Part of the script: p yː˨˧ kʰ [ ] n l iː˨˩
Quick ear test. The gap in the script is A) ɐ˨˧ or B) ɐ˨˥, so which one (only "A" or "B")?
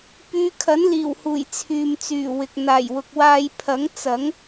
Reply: B